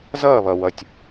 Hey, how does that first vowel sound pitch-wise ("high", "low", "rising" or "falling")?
falling